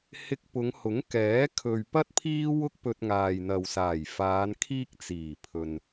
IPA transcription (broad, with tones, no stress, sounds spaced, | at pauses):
h ɪ˧ k̚ p ʊ˨˧ ŋ h ʊ˨˥ ŋ k ɛː˨˥ kʰ ɵ˨ ɥ p ɐ˥ t̚ pʰ iː˥ w ʊ˥ k̚ p ɵ˧ t̚ ŋ aː˨ j n̪ ɐ˨ w s aː˨˩ j f aː˨˧ n kʰ iː˥ k̚ t͡s iː˨˩ pʰ ɵ˨ n